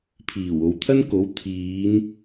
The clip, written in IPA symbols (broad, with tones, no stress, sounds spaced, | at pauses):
pʰ iː˨˩ w o˨ w t̪ʰ ɐ˥ n k o˨˥ w t̪ʰ iː˨˧ n